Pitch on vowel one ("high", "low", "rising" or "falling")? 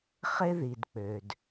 high